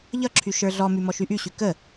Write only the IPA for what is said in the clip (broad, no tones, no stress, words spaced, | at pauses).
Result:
ʎʌǁʰy ʃə˞ɮɔmy mɔʃyʔyɕy kə